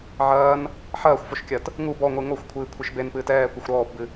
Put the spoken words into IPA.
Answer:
ʕ ɐː n | ħ ɐː xʷ f o ʃ kʲ ɐ t | ŋ u b ɔ ŋʷ ɨ ŋ o xʷ kʷʰ ɨː kʷʰ ɨ ʃ b e n p ɨː t ɛː kʷ ɐ xʷ ɾ ɔː p b ɨ

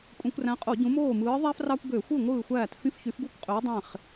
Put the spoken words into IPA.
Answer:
kʷʼ ẽ˧˩˧ kʷ r æ̃˨˥ qʼ o˧˩˧ ɟ ũ˨˥ m oː˥˩ m ɯː˨˥ ðˤ æ˥ f r ɑ˥ kʷ ɡ ø˧˩˧ xʷ ɯ˥˩ ŋʷ ɯː˥˩ xʷ æː˥˩ t f ĩ˥ f ç y˨˥ f ɡ u˥˩ kʷ qʼ ø˨˥ w dˤ ẽ˥˩ χ

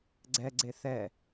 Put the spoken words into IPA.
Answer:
ɡ͡ǀ ɛ ɡ͡ǀ e θ ɛ

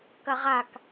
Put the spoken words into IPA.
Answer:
k ɐ ʁ a k

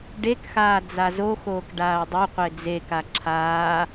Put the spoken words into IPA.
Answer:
ɖ e k x aː d͡z a z o x oː k ɖ aː o̯ dˤ o qʷ e d͡z e k a ǁʰ aː

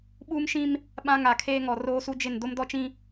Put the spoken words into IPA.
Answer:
ɓ uː˦ m ʃ ĩ˦ m | ɓ ã˦ ŋ a˨ kʰ eː˦ ŋ ɔ˨ r oː˦ s u˦ d͡ʒ ɪ˦˨ n d o˦ m d ɔ˦ t͡ʃ ĩ˦

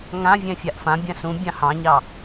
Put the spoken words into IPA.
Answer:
ŋ ã vʲ ɛ̃ fʲ a ʔ f ã bʲ ã s ũ bʲ ɑ̃ h ɑ̃ ɲ ɑ

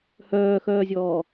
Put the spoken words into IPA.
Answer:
h œː x œː zʲ ɔː

